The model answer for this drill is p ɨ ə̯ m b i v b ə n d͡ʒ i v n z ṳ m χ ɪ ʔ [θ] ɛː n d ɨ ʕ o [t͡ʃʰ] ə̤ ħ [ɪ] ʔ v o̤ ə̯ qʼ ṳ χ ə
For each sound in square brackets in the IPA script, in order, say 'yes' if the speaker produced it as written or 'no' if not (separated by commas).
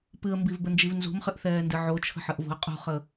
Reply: yes, yes, no